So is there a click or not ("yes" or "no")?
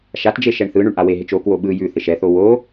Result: no